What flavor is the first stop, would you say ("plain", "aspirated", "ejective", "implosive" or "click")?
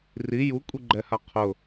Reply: ejective